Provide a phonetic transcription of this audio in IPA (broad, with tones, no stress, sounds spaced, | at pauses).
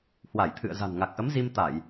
h w a˧˩ j t̪ʰ ɨ̰˧˨ ə̯ z a̤˨˩ n ŋ a˨˩ k̚ ʔ ə˨˦ m z i˧ m t̪ a˧˩˨ j